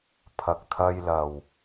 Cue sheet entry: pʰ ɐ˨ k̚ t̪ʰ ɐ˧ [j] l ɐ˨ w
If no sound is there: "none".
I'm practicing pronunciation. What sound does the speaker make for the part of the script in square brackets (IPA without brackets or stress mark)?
j